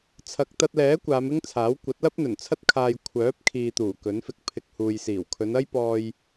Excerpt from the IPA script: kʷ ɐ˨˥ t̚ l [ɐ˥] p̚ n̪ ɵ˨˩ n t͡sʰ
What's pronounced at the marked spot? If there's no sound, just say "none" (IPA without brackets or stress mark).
ɐ˥